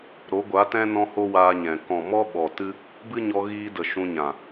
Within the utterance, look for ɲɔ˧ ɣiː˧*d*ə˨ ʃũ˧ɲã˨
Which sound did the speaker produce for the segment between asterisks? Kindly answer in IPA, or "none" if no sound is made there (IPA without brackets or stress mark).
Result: d